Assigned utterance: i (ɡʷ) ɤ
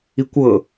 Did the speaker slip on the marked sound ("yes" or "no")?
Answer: yes